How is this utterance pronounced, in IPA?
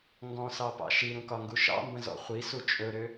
ŋ ɡ ɔ̃ s ɑ p ɑ̰ ʃ i ɾ ũ k ɒ ŋ ɡ u ʃ ɑ̰ m b ə̃ z ɔ̰ χʷ i s u t͡ʃʼ ɵ ɾ ø

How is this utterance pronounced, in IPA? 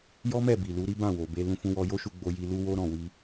j ɔ˦ m ɛ˦˨ b i˨ l u˨˦ ɾ i˦ b ã˦˨ w o˨ b e˧ l ũ˧ f ũ˧ w ɔ˧ j o˦ ʃ u˧ ɡ͡b o˧ j i˧ l u˦ w o˦ ɾ ɔ̃˦˨ w i˧

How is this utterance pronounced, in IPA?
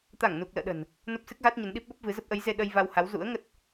t̪ a˧˩ ŋ n u˨˩ k̚ l ə̰ː˧˨ ɗ ə̤˨˩ n | n o˦˥ p̚ s ɨ˦˥ k̚ ɣ a˦˥ t̚ ɲ ə˨˦ n ɗ i˦˥ p̚ ɓ ə˦˥ p̚ v ɨ˨˦ z ə˦˥ p̚ ʔ ə˨˦ j z e˧ ɗ ə˧ j v a˧ w h a˨˦ w z ṵ˧˥ ə̯ ŋ ə˦˥ t̚

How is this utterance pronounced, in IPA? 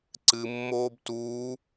ǀ ɨ mː oː b t uː

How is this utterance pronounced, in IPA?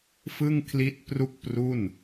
f ɯ˥˩ ŋ kʰ l i˦˥ t̚ p r u˥˩ k̚ p r u˥˩ n

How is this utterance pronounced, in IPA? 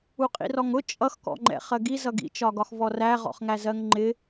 u qʼ ḭ r ɔ ŋ ʊ t͡ʃʼ ʌ x k ɔ̰ ŋ͡ǃ ɛ̰ χ ɜ ɡ i z ʌ ɡ ḭ t͡ʃ ɒ ɡ ɒ x v ɔ r æ ʁ ɔ̰ χ ŋ æ z ɜ ŋ ŋ͡ǃ ɪ

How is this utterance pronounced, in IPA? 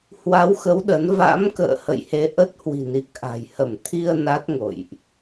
h w a˨˦ w x ə˨˦ w ɗ ə˨˦ n v a̰˧˥ m k ə̰ː˧˨ h ə̰˧˨ j h e˨˦ ʔ ə˦˥ t̚ h w i̤˨˩ n i˨˩ k̚ ʔ a̤˨˩ j h ə˧˩ m t̪ʰ i˧ ə̯ n a˦˥ t̚ ŋ o̰˧˨ j ʔ

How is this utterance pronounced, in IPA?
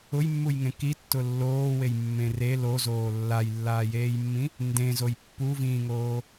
ʊ j mː u j ŋ ẽ k i tː ʊ lː oː w e j mː ẽ r e l o z oː lː a j lː aː j eː j mː ĩ | n d ẽ z o j pː u v ĩː ŋ oː

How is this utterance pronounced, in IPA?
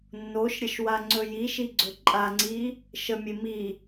nː o ʃ ɾʲ ə ʃ w a ŋ͡ǀ ɵ j i ʃ i ɡ͡ǀ ɵ ǃʼ a ŋ͡ǀ i | ʃ ə mʲ e m i

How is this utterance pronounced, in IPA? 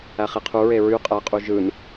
æ χ i qʰ u ɹ e ɹ y qʼ æ qʼ u ʒ ɯ n

